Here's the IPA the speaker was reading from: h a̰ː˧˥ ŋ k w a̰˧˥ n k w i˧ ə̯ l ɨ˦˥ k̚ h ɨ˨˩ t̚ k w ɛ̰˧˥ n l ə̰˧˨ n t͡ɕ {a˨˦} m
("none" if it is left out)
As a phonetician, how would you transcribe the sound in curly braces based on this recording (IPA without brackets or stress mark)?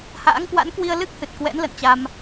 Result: a˧